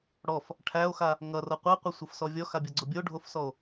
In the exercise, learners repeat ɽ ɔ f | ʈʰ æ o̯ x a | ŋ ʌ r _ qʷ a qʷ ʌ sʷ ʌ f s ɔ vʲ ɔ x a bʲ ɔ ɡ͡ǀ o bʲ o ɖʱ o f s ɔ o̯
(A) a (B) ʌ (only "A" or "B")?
B